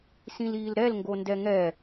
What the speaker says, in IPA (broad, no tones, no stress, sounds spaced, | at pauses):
s ĩ l iː l ɾ ɛ l ŋ ɡ o n d ɛ ŋ ɛ